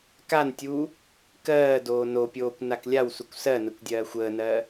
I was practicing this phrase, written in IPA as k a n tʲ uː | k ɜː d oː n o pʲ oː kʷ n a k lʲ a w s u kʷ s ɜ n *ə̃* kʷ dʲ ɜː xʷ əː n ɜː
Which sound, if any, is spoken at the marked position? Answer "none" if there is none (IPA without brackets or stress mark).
ə